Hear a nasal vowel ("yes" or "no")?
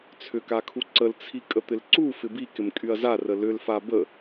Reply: no